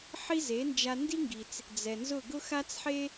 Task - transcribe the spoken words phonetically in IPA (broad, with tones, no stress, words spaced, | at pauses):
ħi˥ze˩˥nd͡ʒa˧ ndi˥ŋɡi˩t͡s | d͡zɛ˩nzʊ˥˩ ɡʊ˥xa˥t͡sħe˥